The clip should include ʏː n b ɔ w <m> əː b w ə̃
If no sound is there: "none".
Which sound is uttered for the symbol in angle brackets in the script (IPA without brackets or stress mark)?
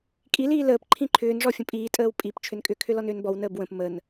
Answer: n